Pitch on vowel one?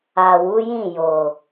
low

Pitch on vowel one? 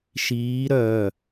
rising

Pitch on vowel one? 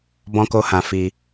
high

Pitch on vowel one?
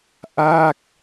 falling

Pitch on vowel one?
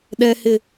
high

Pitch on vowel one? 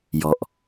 low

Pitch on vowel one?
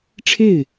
falling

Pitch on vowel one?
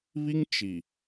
high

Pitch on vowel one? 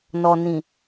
low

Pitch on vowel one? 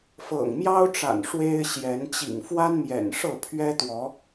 low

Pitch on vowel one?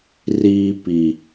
low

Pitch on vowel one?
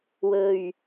low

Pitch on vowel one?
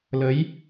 rising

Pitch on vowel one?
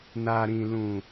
low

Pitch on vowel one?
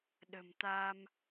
low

